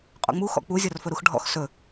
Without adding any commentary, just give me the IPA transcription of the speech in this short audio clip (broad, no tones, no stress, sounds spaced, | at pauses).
qʼ ɔ̰ ŋ͡m u x ɔ̰ k͡p u zʲ ɔ r f ɵ ɾ u x ɖʱ ɔ̰ x s ɵ